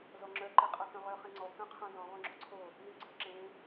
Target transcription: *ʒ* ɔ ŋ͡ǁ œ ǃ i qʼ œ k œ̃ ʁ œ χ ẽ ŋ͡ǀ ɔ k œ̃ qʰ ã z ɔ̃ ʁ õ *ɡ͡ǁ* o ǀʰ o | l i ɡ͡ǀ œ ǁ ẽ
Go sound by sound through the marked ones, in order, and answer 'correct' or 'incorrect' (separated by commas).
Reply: incorrect, correct